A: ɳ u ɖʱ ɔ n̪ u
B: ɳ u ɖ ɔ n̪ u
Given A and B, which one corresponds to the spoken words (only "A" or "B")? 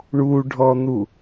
A